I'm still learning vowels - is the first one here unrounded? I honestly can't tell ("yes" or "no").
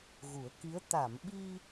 no